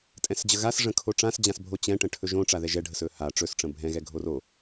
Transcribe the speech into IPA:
tʼɛ̃sd͡ʑəɣas ʐə̃kʰoʈ͡ʂãsd͡ʑãs bʱot͡ɕɛ̃ʈə̃ ʈʰɵʒõ ʈ͡ʂaðɛʒɛɖʱəs ɵha ʈ͡ʂɵsʈ͡ʂə̃ bʱɛ̃ɣɛ ɡʱoro

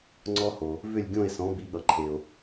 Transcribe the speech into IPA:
ŋ͡ǀɔ˥ho˩ | vʏ˥˩lʲɡʲõ˥˩e̯sɔ̃˩˥ bi˩˥ɠʌ˩ǃʰe˩o̯

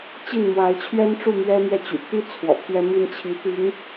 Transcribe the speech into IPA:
t͡ɕi˥˩nmwa˧˥ɪ̯t͡ɕʰɥɛ˥nʈ͡ʂu˥˩ mɥɛ˥mɥɛ˥˩t͡ɕy̰˨˩ t̪i˥ t͡sʰwɔ̰˨˩pʰɥɛ˥mi˥n t͡ɕʰi˧˥t̪i˧˥ŋ

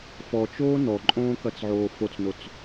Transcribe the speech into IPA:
fɔt͡ʃoː nɔǃʼõːkɐt͡sʕoː fot͡snot͡s

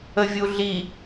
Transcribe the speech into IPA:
əvʲuɮi

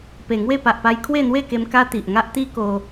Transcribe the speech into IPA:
pe˨˩ŋwe˥˧ pa˨ʔpa˧j kʰwe˥˧n̪we˥˧ke˧m ka˦t̪i˨ʔŋa˦ʔ t̪i˦ko˧

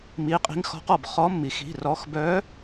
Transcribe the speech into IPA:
mi˩˧˩qʼi̤˨˥ŋxɔ̤˨˥qɔ˩b χɔ˨˥mːi˩x i̤˩˧˩rɔ˩˧˩xbœ˨˥

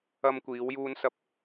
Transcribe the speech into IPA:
ɐ˧mkʷiː˨˧wjuː˧n sɐ˧p̚

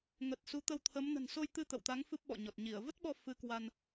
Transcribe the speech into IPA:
ŋə˨˩t̚ su˨˦t̪ə˧wt̪ʰə˨˦m nə̤˨˩nso˧jt̪ɨ˧ t̪ə̰˧˨wt̪a˨˦ŋ fɨ˦˥p̚ɓɔ̰˧˨ɲɔ˨˩t̚ ɲi˧˩ə̯ və˦˥t̚ɓɔ˧ fɨ˧kwa˧n

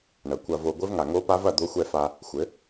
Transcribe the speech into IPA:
ɳɐ˩˥kʷɐ˧vo˧ ɡʷɘ˦˥vŋa˨˩ŋo˦˥pa˦˥v ɐ˥˩d̪o˦˥xʷɛ˥˩fa˧ | xʷɘ˩˥

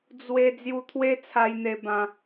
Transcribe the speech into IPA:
d͡zwe˧ d͡zju˧t̪ʰwe˦t͡sʰa˧jn̪e˧ bã˧

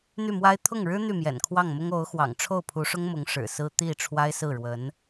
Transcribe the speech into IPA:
n̪y˥˩mwa˥ɪ̯ t̪ʰʊ˥˩ŋɻɻ̩˥ n̪y˥˩mjɛ̰˨˩nkʰwɑ˥˩ŋmʊ˥ŋ o˧˥ʊ̯xwɑ̰˨˩ŋ ʈ͡ʂʰo˥˩ʊ̯pʰu˧˥ʂʊ˥ŋmʊ˧˥ŋ ʂɻ̩˨˩sɹ̩˥ t̪i˥˩ ʈ͡ʂʰwa˥ɪ̯sɹ̩˥˩ɻwə˧˥n

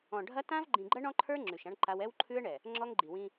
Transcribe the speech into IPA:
ɔ̃˨ɖʱɐ˦ tã˦v ɡ͡ǃĩ˨ɡ͡ǃɐ˦ɳɔ̃˦ǃʰə˞˦ ŋ͡ǁʉ˨ʃã˦ɳǃa˦w ɛ˦wǃʰʉ˦ə̯ɳɛ˨ | ŋ͡ǁɔ˦ŋɡ͡ǃi˨wĩ˦

